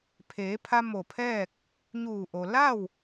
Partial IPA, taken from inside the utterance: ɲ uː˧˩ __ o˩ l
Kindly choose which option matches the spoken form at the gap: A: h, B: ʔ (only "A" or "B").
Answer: B